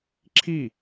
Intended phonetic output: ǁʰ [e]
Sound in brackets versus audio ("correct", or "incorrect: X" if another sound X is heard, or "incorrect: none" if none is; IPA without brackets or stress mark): incorrect: i